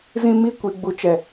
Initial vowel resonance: nasal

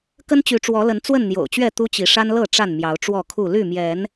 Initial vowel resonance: oral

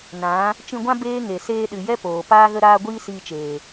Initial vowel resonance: nasal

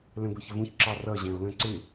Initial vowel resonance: nasal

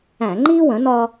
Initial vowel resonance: nasal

